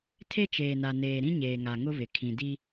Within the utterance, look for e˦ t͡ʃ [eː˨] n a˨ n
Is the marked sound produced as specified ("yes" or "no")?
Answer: yes